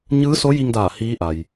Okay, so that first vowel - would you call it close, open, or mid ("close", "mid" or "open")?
close